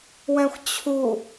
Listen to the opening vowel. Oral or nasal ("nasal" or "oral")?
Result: nasal